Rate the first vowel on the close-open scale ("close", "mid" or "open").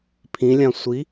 close